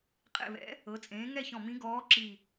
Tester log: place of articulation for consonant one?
uvular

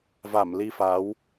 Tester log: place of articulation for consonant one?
labial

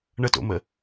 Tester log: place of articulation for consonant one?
retroflex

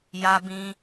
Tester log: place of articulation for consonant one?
palatal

